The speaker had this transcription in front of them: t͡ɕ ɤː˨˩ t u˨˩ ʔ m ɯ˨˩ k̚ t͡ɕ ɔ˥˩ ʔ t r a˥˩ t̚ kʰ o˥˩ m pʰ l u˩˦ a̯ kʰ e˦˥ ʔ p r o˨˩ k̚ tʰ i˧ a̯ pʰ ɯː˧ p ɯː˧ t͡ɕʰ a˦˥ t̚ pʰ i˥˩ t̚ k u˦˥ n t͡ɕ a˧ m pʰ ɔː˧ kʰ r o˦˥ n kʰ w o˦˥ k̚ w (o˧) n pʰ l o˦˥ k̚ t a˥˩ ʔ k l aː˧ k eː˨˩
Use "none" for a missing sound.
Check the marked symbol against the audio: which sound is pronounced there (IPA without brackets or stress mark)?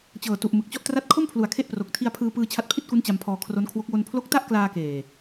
o˧